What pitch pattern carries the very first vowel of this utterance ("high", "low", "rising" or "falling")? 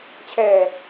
low